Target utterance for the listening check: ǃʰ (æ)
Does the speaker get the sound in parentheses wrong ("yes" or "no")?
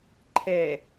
yes